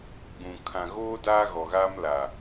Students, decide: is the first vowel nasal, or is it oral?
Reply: nasal